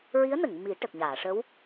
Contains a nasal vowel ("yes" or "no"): no